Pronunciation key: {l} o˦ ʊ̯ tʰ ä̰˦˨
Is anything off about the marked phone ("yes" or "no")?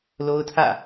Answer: no